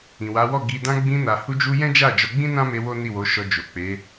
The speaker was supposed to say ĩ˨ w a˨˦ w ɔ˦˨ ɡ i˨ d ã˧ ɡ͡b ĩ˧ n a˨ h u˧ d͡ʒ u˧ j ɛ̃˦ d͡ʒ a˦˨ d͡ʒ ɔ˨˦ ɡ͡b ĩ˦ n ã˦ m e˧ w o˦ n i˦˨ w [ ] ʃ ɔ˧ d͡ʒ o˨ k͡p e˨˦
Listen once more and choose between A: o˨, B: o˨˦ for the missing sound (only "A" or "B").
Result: B